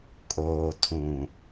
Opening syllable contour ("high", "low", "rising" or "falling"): low